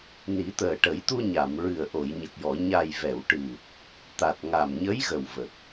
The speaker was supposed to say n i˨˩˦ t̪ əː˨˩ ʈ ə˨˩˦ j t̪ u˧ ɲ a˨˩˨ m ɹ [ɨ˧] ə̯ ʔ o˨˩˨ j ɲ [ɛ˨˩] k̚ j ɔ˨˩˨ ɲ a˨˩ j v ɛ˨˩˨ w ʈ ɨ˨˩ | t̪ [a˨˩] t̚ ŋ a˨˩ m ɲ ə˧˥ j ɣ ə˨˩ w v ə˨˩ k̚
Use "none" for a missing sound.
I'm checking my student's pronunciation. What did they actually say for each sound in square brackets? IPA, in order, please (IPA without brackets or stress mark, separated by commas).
ɨ˨˩, ə˨˩, a˨˩